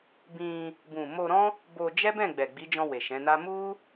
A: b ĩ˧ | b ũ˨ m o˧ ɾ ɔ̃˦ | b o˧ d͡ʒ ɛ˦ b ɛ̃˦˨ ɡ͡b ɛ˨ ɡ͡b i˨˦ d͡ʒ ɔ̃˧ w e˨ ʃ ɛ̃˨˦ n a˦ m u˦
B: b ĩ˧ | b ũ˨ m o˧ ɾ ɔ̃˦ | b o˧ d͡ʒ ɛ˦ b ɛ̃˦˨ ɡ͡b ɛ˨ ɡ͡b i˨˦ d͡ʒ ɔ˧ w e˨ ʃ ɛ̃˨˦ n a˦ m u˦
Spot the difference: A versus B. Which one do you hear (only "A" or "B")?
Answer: A